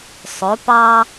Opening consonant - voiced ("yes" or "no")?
no